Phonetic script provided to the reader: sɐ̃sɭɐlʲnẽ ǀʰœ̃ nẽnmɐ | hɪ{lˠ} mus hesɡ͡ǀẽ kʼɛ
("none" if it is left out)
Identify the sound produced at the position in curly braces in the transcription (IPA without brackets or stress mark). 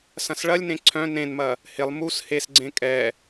lˠ